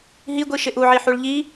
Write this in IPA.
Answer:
ɦ i ɡʷ i ʃ ɪ ʔ u ʕ i ħ u ɭ ʎ i

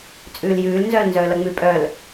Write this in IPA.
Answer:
t͡sʼ ʉː l j ʉː l n z œː l n z œː l ʌ ŋ͡m ʉ pʼ œ l

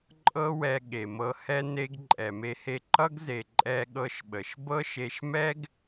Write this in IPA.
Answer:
ǃʼ ɤ˦ w ɛ˧ ɠ e˨ m ɤ˧ h ɛ˦ n e˧ ɡ ǃʼ ɛ˨ m e˧ h e˧ ǃ ʌ˦ ɡ z e˨ ǃʼ ɛ˧ ɠ ɤ˧ ʃ ɓ ə˨ ʃ b ɤ˦ ʃ e˧ ʃ m ɛ˦ ɡ

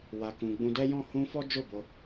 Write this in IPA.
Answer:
w a˧ k ũ˧ ɡ͡b ũ˧ d ɛ˦ j ɔ̃˦˨ h ũ˧ f ɔ˦ d͡ʒ o˦˨ b o˧

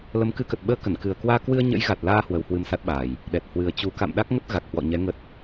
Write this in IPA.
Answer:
l ə˨˦ m k ɨ˨˦ k ə˨˩ t̚ ɓ əː˧ k ə˧˩ n k ɨ˨˩ ə̯ k w aː˧ k w ɨ˧ ə̯ ɲ ə̰˧˥ j ɣ a˨˩ t̚ l aː˧ h w ə˨˦ w h w ɨ˧ m s a˦˥ t̚ ɓ aː˨˩ j | ɗ ɛ˨˩ t̚ h w ɨ˨˩ ə̯ t͡ɕ u˨˩ k a̰˧˨ m ɗ a˦˥ k̚ ŋ ə˦˥ t̚ ɣ a˨˩ k̚ h w ɔ̰˧˨ ɲ ɛ˨˦ ŋ ə˨˩ t̚

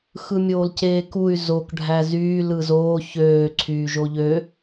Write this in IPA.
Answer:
x ɯ mʲ oː l c eː k u y̯ z o k ɖʱ æ z yː l ɯ z oː ç øː ǀʰ yː ʒ o ʎ ø

